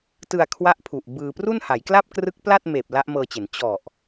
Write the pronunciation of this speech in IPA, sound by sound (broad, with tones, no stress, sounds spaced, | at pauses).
t ɯ˧ a̯ kʰ w a˦˥ ʔ pʰ u˨˩ ʔ b ɯː˧ p r u˥˩ n h a˩˦ j k l a˥˩ p̚ k r ɯ˦˥ k̚ p l a˥˩ t̚ m eː˨˩ p̚ l a˦˥ ʔ m ɤː˧ t͡ɕ e˩˦ n t͡ɕ ɔ˨˩ ʔ